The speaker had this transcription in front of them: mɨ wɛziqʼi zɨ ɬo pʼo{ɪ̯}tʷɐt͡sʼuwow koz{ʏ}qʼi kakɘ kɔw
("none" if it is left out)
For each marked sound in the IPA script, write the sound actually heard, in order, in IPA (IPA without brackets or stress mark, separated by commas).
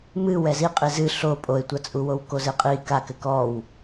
ɪ̯, ɨ